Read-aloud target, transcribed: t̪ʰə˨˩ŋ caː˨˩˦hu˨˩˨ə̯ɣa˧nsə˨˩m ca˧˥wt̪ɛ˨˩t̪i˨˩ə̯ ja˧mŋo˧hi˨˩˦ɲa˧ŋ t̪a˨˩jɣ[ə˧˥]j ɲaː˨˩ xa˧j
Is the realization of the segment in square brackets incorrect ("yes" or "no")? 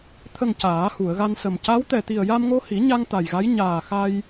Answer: yes